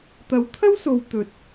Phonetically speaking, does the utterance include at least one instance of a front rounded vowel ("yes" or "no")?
no